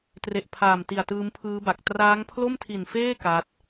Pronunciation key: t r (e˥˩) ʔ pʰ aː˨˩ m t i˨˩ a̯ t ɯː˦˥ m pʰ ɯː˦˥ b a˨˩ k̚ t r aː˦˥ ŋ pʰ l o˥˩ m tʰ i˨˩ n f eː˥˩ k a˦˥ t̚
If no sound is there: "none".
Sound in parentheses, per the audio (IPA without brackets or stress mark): e˨˩